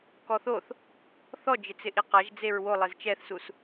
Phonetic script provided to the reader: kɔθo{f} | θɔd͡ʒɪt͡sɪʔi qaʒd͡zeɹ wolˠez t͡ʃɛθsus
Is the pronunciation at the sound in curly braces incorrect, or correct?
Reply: incorrect